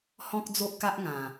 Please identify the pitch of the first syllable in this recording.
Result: high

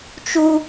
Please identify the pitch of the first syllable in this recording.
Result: high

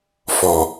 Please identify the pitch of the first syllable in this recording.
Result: low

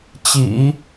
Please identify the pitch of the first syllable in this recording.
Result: low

